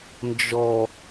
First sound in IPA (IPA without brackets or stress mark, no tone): n